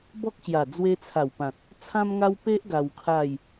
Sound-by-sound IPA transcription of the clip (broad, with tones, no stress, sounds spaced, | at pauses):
b ɔ˦ k̚ ɕ j a˨˩ d͡z w e˧ t͡sʰ a˨˩ w p ã˨ t̚ | t͡sʰ ã˦ m ŋ a˦ w p e˦ ʔ ɡ a˧ w kʰ a˥˧ j